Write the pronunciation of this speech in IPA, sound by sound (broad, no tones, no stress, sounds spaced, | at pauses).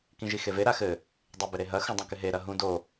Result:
k ĩ ʒ i x e v e ɾ a x ɘ | dˤ e b ɪ ɾ e ɦ ɐ x ũ dˤ ũ k ɪ ɦ e ɾ ɐ ɦ ũ d o